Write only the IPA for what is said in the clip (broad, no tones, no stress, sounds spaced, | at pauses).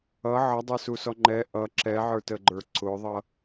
ʌ ʕ ʌ dˤ ə˞ s u s ɔ ŋ͡ǃ ɛ ʔ ʌ ǁ ɛ ʕ ə˞ t ə ɡ͡ǃ ə˞ ǀ ʊ ðˤ ʌ